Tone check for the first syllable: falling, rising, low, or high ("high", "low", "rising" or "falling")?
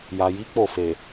low